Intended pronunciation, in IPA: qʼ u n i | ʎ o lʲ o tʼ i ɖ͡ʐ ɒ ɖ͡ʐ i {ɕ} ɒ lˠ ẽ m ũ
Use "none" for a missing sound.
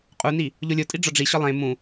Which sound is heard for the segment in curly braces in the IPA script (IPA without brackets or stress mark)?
ɕ